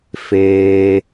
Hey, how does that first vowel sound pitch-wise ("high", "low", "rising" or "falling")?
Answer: low